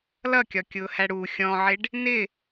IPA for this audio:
lʌkʲɒkʲʊːhæ ɽu xʲɔ̃ʕɪɖ | nɪ

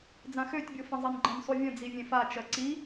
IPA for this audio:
d͡zãxøtʲbʲo fə̃zˤinɡ͡ǃə̃n sˤuvʲə̃ d͡zivʲẽfat͡ʃɜ ǀi

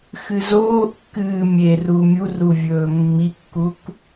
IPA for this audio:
xɨzoːʔkːɨː mʲeru mʲuruvʲɵː mːikːuk

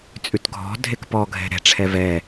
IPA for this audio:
t͡sʼʉtɡʱɔ̤dʱek pɔɡʱɛ̤ ɾɛ̤ʈ͡ʂʰɛ vɛ

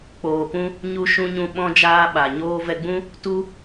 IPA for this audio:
k͡poː˨pũ˧ | ɲu˧ ʃũ˧ɲũ˧ ɓɔ̃˧d͡ʒaː˧ɓa˨ɲoː˧ vɛ˧ɡ͡bũ˦ | tu˧

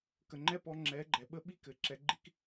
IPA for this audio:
kə˨ŋ͡ǃɛ˦pɔ˧ ŋ͡ǁɛ˨˦ɡ͡ǃɛ˨ɓə˦ ɓi˦kɘ˨ǁɛ˧ɡ͡ǃi˦k

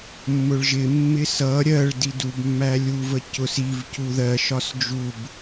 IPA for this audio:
mːʊɭʒɪ mːɪsʌ ɾʲɜɭ didubmːæ lʲuvə cʊs iv cuðɜʃɒs d͡ʒub

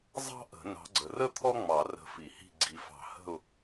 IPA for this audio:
zˤɑ̤˥ʔə̤˨˩˦ nɑ̤˨˦ɡ͡ǀə˨rə˥ t̪ʰɔ˥ŋ͡mɑ˨˩˦rə̤˨˦ fi˨˩˦hi̤˦˨ ɡ͡ǀi˨fɑ̤˨˩˦hə̤˦˨ʊ̯

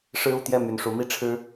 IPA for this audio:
ʂɻ̩˦u˥˨t̪jɛ˥˨ my˨˩nʂu˨˦ mi˦ʈ͡ʂʰɻ̩˦

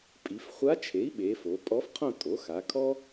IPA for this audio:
pʼi˩˧fχʷa˧˥t͡ʃʰe˩˥i̯ ɓe˩˧ fo˩˧pʼɔ˧˥fqʰõ˥˧tʼo˩˥ xa˩˧kʰɔ˥

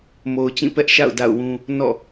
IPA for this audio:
mo˨ʊ̯t͡ɕĩ˦˨ pɛ˦ʔʃa̰˦˨ʊ̯ da̰˦˨ʊ̯wũ˦ | nɔ̰˦˨

